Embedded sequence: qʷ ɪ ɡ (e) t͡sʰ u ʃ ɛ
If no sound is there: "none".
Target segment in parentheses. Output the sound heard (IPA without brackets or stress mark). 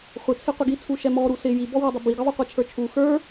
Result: i